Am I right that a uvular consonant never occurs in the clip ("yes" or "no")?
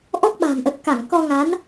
yes